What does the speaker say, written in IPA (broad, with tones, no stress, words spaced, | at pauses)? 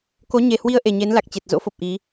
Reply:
ko˨˦ɲe˨˩hwi˧ə̯ ʔe˨˩ɲe˨˦n la˨˩k̚t͡ɕe˨˩t̚ zo̰˧˥fo˨˩p̚ ʔi˨˦